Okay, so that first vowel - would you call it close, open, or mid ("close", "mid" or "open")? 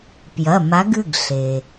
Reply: open